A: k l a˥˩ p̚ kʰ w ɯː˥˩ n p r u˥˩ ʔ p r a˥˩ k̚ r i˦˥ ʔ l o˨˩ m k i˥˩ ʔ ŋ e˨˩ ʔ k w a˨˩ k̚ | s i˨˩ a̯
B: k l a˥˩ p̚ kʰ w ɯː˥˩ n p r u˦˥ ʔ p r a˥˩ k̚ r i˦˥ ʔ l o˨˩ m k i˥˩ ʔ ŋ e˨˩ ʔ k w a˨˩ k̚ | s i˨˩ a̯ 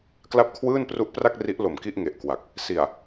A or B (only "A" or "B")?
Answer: B